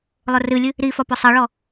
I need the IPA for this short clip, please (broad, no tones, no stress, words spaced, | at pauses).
lˠʊrɨlʲɨ | ɾifɒ pʊsˤʌɭɔ